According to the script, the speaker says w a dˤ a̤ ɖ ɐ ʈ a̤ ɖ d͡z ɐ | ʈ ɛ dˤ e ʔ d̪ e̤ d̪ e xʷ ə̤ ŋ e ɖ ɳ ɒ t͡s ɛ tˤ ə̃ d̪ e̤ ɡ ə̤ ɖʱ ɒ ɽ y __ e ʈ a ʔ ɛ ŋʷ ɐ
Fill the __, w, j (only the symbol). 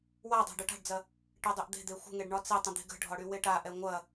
w